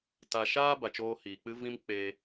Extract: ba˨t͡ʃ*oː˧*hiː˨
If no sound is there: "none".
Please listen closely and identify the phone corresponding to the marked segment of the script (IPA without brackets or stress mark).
oː˧